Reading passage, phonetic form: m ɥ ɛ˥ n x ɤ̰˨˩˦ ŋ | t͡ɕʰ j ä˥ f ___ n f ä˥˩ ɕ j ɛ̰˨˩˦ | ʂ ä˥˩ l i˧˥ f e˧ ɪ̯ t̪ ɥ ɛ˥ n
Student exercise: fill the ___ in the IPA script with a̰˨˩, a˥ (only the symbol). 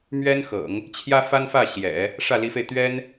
a˥